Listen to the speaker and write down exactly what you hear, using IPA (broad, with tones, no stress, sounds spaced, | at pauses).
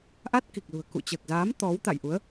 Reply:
ʔ a˦˥ t̚ k i˨˩ k̚ l ṳ˨˩ ə̯ k ṵ˧˨ t͡ɕ əː˨˩ k̚ z aː˨˦ m t̪ ɔ˨˦ w t̪ a̰˧˨ j ʔ u˨˦ ə̯